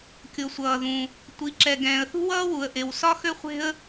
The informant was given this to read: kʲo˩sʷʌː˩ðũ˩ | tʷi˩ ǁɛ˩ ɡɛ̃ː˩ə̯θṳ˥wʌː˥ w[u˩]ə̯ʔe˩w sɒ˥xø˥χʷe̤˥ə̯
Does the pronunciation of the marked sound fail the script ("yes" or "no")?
no